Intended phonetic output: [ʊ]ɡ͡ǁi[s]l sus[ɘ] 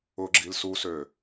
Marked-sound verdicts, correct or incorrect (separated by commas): correct, incorrect, incorrect